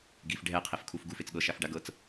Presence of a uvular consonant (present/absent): present